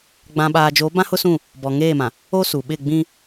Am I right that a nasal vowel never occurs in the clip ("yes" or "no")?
no